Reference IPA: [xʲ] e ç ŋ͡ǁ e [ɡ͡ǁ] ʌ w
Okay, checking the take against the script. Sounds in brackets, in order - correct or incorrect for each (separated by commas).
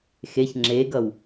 incorrect, incorrect